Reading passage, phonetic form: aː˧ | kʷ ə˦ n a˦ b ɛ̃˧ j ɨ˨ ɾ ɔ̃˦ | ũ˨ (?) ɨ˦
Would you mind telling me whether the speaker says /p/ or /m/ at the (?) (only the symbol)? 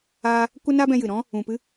p